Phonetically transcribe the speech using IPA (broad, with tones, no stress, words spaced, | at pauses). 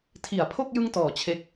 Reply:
tʰi˩˦a̯pʰo˥˩k̚ jɯ˥˩ŋtɔː˩˦ t͡ɕʰe˦˥k̚